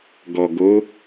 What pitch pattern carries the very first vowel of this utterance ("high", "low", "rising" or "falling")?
low